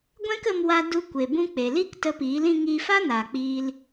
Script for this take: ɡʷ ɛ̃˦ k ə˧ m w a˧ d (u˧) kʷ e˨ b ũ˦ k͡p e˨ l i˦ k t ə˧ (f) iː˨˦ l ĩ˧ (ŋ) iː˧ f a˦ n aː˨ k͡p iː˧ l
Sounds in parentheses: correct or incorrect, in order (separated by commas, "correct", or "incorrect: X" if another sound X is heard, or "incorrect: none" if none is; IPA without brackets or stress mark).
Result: correct, incorrect: p, correct